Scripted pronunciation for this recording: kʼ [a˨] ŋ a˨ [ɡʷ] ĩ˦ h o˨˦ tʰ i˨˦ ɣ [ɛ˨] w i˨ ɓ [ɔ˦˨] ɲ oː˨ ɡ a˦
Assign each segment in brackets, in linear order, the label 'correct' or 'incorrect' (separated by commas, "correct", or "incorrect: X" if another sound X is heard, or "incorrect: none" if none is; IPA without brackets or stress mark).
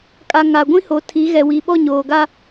correct, correct, correct, correct